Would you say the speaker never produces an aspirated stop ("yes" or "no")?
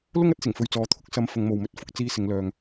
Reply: no